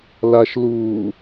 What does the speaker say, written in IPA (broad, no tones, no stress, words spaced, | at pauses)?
laʃluː